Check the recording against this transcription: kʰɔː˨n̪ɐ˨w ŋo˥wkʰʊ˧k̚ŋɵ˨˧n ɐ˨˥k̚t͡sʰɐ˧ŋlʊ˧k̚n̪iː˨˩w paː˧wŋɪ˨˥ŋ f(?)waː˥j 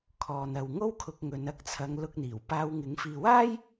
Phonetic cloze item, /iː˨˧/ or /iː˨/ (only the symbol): iː˨